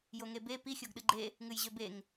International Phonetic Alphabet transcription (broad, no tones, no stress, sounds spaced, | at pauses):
j o ŋ e b e p i xʲ o ɡ ɗ ɨ ɡ͡ǃ e | ŋ ɨ j ʑ ø b e ŋ